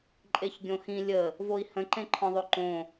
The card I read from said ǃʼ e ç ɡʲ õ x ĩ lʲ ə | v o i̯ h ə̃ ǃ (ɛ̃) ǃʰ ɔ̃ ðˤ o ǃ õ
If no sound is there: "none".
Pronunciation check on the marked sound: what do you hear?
ẽ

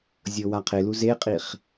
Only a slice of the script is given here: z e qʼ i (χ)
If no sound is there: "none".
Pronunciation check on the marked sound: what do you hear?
χ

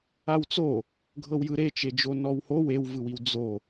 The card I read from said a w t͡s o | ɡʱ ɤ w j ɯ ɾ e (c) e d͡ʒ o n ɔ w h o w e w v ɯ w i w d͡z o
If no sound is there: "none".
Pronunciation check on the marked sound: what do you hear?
t͡ʃ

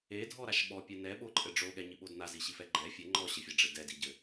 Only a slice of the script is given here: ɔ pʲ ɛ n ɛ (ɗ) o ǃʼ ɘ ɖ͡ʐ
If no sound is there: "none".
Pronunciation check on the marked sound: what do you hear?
ɓ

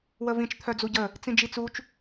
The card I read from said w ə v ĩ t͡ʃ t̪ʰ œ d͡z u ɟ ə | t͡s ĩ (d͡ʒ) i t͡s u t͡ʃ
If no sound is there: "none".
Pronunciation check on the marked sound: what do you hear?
d͡ʒ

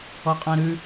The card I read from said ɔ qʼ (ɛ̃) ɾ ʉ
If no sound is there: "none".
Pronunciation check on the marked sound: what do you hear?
ɛ̃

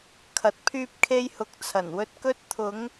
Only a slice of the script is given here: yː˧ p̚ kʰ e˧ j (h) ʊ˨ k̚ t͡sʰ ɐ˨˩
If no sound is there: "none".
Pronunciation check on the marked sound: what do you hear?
h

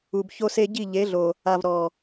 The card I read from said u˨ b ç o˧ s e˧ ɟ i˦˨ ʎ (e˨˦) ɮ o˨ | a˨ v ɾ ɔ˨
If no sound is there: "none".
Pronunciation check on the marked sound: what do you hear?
e˨˦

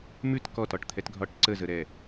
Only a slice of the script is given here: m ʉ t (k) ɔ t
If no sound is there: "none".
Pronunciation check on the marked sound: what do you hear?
k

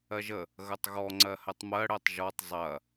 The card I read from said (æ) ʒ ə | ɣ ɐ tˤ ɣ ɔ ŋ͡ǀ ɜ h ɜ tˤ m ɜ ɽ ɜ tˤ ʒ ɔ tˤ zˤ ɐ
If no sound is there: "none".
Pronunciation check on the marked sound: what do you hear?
ɜ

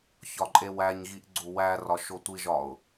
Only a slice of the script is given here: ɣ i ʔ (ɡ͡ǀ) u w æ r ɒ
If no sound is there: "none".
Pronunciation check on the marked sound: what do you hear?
ɡ͡ǀ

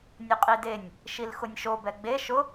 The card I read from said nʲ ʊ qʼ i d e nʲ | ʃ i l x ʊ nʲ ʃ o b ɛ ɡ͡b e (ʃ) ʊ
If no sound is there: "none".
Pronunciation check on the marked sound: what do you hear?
ʃ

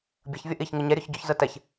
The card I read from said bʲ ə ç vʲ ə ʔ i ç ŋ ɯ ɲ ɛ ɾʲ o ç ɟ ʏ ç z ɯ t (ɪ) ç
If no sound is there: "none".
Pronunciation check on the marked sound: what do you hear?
ɛ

